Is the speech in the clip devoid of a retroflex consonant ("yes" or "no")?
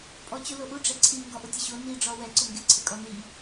no